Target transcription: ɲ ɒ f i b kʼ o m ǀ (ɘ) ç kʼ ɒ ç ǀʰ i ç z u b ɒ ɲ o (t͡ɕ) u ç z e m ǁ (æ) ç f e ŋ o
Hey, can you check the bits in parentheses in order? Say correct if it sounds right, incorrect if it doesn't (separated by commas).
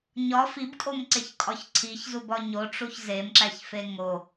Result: incorrect, incorrect, correct